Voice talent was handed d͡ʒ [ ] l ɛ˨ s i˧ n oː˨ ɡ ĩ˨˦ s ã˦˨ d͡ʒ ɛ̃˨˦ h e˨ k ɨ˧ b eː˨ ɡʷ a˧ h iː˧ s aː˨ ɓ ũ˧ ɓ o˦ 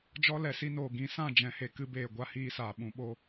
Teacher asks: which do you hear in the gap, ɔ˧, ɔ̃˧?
ɔ˧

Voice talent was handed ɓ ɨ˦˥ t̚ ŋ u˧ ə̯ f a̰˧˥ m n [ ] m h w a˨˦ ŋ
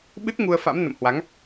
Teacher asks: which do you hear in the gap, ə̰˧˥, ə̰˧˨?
ə̰˧˨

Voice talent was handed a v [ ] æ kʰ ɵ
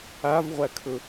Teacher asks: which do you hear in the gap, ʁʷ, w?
ʁʷ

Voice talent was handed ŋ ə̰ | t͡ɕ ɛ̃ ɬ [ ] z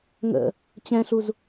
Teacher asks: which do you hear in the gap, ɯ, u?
u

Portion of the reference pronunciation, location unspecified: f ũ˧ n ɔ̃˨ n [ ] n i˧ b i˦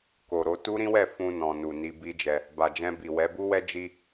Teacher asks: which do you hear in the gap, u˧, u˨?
u˨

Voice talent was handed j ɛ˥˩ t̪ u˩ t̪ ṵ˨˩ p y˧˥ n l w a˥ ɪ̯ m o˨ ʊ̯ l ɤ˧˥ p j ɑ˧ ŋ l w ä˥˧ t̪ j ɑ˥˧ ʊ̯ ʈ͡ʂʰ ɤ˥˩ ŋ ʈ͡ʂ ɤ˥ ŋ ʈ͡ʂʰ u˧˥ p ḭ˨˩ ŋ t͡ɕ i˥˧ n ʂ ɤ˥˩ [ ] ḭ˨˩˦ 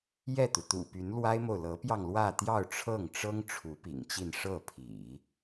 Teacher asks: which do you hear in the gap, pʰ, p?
pʰ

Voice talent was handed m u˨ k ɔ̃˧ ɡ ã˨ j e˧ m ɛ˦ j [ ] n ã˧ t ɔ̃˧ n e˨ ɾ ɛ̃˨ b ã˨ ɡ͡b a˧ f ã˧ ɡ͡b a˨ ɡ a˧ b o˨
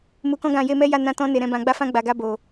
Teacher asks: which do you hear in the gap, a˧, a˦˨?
a˦˨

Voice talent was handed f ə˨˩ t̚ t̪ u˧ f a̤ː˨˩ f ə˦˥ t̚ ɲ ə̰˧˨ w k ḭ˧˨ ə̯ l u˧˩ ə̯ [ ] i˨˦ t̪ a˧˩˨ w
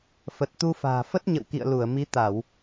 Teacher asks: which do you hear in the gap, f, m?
m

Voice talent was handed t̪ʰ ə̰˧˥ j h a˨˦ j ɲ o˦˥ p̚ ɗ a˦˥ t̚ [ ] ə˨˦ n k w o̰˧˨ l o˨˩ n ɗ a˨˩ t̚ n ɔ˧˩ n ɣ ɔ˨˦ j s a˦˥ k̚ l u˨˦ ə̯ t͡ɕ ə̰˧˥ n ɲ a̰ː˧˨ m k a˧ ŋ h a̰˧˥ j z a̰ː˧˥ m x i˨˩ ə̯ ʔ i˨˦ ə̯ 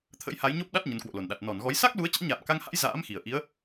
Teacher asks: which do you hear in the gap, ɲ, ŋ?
ɲ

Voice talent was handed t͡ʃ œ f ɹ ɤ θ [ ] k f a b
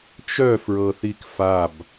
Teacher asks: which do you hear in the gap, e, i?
i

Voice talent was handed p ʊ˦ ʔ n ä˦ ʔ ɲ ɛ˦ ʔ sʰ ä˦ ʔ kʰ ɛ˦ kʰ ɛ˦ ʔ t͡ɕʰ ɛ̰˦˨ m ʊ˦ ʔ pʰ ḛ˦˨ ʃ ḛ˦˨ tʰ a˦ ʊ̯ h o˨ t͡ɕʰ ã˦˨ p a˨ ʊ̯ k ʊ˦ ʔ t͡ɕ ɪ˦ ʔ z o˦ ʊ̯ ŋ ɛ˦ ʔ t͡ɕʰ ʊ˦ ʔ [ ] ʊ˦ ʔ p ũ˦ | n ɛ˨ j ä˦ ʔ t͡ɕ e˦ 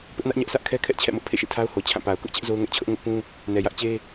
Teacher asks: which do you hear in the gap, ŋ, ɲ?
ŋ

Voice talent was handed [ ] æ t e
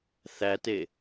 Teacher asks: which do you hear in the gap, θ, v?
θ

